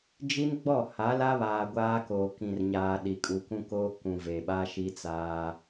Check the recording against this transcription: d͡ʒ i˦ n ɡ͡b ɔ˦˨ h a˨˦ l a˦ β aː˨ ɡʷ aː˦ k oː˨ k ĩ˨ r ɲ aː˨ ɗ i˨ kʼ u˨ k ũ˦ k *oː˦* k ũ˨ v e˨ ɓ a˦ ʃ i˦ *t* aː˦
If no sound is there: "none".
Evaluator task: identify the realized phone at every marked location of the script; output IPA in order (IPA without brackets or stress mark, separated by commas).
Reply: oː˦, t͡s